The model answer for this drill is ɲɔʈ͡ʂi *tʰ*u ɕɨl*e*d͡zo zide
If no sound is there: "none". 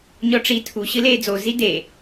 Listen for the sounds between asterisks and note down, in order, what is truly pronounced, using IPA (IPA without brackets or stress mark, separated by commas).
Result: tʰ, eː